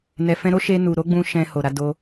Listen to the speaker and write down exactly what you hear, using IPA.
n ɛ˨ f ɛ̃˧ ɾ o˦ ʃ e˧ n u˨ ɾ o˨˦ ɡ͡b ũ˧ ʃ ɛ̃˧ h o˨ ɾ a˧ d o˧

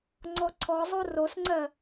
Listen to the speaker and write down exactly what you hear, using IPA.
ŋ͡ǀ ɔ ǀʰ ɔ zˤ o r o s ŋ͡ǀ ɜ

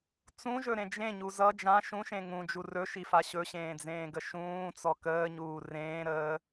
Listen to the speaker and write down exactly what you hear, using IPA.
t͡s ũ ʒ ɵ ɾ ẽ d͡ʒ ẽ ɲ u z ʌ d͡ʒ ã ʃ ũ ʃ ẽ ŋ ũ d͡ʒ u r ɵ ʃ i f a ɕ ɵ ɕ ẽː d͡z ẽː ɡ ə ʃ ũː t͡s ɔ k əː ɲ uː r ẽː ɾ əː

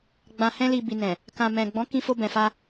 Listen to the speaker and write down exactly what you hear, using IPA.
ɡ͡b ã˨ h ɛ̃˧ l i˨ b i˨ n ɛ̃˨ | k ã˨ m ɛ̃˨ ɡ͡b ɔ̃˨˦ k ĩ˧ f o˧ b ɛ̃˨ f a˧

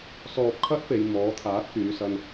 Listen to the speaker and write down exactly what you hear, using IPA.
s ɔː˧ p̚ kʰ ɐ˥ t̚ p e˨ j m ɔː˨˥ t̪ʰ aː˨˥ t̚ k yː˨˧ s ɐ˧ n

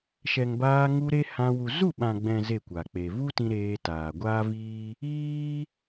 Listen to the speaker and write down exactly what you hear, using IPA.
ʃ ɛ˨ ŋ b aː˧ ŋ u˧ ɾ e˦ h ã˧ w u˨ z u˦˨ ɓ ã˨ ɡ͡b ɛ̃˨ z e˦˨ kʷ a˨ k͡p e˨ v u˦ t ĩ˧ ɾ eː˧ t aː˨ ɡʷ aː˦ v iː˦ | iː˦

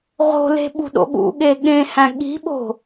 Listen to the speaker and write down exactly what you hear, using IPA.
ʁ o̤ l e̤ ɓ ṳ ɗ o̰ ɠ ṵ ɠ e ɠ ẽ h æ̃ ɠ i̤ ɓ o̤

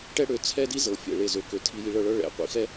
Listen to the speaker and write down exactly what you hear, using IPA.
ʈ ɛ˦ ɽ ø˨˦ t͡sʰ ɛ˦ d i˦ z ɤ˨ fʲ ɛ̰˦˨ ɭ e˦˨ z ø˧ k ø˧ tʰ i˧ j i˧ ɭ ɤ˧ ɭ ɤ˦ ɭ ɛ̰˨˦ qʷ ḭ˧ x ɛ˦

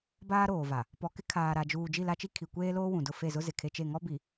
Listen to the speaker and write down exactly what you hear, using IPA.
b aː˦ ɾ oː˨ v a˨ | p ɔ˨ k ɪ˦ kʰ aː˨ ɾ a˨ d͡ʒ uː˨ d͡ʒ i˦˨ l a˦ t͡ʃ i˦ kʰ i˨ kʷ eː˦ l oː˦ w ũ˨ d ʊ˦˨ f e˦˨ z ʊ˦ z ɪ˨ kʰ e˦ t͡ʃ e˦˨ ŋ ɔ˦ b i˨

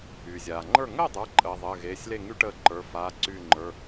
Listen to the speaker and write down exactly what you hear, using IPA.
yː˩ zʲ aː˩ ŋ͡ǃ ə˞˥˩ ŋ əː˥˩ dˤ ə˞˩˧˩ ǃʼ əː˩ ðˤ əː˩˧˩ ɣ eː˩˧˩ sʲ l e˥˩ ŋ y˦ ʈ əː˧˩ ǃ ə˞˩˧˩ f aː˩˧˩ ǀ yː˧˩ ŋ͡ǃ ə˞˩˧˩

